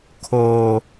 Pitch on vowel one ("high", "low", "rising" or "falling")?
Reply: low